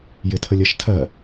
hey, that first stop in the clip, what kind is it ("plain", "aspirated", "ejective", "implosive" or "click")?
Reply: aspirated